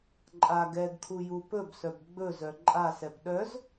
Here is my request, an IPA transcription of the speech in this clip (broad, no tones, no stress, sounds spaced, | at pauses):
ǃʼ a ɡ ɛ ɡ kʰ u j u p ɵ b s œ b ɡ͡b ɵ z œ ǃʼ a s ɛ p ɗ œ z